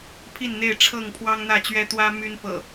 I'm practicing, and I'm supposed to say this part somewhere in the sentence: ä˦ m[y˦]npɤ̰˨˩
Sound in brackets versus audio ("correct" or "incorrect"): correct